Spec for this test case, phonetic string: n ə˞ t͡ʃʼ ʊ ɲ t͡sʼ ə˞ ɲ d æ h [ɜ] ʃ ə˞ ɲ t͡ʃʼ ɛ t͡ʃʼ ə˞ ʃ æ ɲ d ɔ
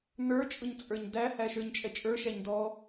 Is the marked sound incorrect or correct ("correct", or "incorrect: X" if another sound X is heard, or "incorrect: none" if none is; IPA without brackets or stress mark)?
incorrect: æ